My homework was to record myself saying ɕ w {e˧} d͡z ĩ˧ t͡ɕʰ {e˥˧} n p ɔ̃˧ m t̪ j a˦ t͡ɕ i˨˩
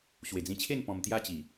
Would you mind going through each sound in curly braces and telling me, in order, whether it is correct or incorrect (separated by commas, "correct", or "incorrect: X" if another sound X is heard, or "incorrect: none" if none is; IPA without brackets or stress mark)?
incorrect: e˨˩, correct